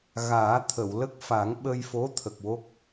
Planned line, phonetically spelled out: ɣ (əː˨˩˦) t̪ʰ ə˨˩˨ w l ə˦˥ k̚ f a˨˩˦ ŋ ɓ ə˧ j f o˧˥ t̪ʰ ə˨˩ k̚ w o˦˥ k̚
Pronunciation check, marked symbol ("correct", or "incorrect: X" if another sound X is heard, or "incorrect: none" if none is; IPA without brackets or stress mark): incorrect: aː˨˩˦